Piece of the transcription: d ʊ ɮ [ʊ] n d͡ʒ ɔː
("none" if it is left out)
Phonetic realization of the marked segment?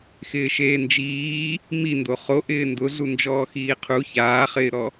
u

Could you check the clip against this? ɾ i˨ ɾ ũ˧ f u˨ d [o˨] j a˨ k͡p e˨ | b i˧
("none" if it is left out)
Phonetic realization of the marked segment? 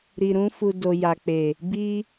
o˨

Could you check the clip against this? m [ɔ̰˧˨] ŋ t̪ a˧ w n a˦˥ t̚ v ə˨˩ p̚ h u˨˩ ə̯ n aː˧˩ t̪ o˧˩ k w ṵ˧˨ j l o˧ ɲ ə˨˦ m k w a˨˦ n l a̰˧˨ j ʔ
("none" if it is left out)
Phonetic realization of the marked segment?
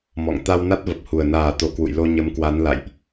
ɔ̰˧˨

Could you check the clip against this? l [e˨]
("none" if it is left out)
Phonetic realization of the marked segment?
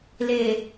eː˨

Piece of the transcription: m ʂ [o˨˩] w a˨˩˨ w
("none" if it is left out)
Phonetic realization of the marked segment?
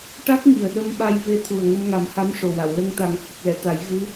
o˨˩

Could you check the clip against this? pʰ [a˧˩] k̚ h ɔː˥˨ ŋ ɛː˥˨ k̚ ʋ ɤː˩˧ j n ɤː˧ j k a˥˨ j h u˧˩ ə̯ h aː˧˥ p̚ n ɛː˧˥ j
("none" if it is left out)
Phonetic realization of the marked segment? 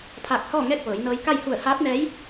aː˧˩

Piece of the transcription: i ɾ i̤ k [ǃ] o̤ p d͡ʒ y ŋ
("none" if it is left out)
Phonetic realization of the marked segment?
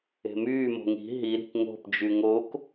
ŋ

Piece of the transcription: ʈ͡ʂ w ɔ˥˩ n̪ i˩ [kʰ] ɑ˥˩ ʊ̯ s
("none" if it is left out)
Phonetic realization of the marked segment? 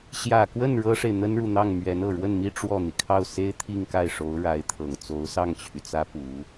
kʰ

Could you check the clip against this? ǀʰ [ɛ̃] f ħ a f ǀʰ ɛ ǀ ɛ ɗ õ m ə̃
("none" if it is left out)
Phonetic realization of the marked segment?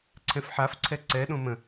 ɛ̃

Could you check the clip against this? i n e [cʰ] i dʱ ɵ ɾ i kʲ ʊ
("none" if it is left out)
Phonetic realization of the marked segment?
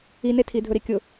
tʰ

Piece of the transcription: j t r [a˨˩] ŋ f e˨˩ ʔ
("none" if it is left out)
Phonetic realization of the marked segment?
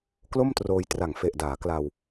a˨˩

